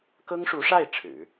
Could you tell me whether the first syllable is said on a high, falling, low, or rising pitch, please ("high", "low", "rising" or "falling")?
high